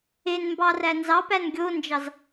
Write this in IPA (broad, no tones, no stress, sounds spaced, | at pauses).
e n m b ɑ r æ n z ɑ p æ n ɡʲ o n d͡ʒ ɑ z